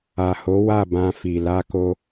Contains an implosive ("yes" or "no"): no